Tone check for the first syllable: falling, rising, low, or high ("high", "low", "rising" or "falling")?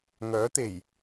rising